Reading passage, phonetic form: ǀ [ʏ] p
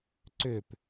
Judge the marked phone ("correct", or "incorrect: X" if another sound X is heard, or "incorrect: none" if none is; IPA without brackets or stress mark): correct